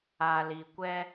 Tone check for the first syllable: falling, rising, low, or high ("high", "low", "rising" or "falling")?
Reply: low